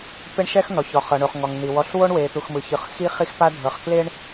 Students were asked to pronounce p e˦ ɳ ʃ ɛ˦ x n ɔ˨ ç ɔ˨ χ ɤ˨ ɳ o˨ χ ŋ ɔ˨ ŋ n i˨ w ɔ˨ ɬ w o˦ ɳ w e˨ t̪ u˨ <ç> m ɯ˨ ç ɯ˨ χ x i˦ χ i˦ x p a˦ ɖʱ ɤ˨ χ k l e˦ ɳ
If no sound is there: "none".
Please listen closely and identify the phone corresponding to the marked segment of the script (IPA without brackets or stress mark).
x